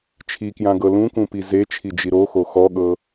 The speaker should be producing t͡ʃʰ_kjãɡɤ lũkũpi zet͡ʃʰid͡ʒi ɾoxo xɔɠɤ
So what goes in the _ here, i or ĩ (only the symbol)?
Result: i